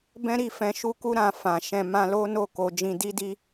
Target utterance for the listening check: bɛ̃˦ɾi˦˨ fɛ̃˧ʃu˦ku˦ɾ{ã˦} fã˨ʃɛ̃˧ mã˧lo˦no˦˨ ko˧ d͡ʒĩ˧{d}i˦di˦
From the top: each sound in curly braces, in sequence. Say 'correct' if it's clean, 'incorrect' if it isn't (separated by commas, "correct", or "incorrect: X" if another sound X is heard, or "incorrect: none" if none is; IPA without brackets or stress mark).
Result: incorrect: ã˧, correct